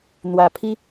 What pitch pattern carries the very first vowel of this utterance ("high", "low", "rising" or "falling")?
low